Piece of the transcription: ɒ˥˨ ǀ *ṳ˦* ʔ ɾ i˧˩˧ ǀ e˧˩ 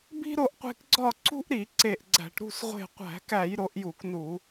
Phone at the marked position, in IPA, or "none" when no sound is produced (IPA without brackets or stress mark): ṳ˦